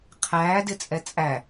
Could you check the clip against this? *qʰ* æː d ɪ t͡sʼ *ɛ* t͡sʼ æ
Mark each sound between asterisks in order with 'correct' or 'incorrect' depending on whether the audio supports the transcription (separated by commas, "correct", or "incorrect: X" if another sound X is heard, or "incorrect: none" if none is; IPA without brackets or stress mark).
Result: correct, correct